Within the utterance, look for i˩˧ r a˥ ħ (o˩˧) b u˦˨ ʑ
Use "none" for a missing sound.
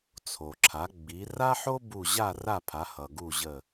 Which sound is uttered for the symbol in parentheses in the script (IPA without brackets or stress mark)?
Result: o˥